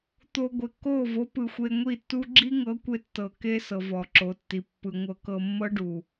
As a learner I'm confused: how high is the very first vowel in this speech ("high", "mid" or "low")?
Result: mid